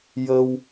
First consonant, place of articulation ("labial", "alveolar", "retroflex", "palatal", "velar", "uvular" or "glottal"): palatal